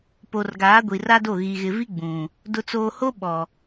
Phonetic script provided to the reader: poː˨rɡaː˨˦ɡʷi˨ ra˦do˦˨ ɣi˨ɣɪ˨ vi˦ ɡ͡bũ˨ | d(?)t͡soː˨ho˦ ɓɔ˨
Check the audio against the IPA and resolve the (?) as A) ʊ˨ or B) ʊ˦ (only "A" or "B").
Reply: A